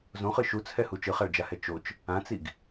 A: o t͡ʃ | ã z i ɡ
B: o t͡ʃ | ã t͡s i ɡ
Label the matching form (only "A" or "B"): B